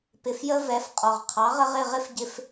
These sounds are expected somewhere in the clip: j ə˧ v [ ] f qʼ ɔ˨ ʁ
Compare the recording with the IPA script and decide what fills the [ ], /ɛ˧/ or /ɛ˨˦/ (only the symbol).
ɛ˨˦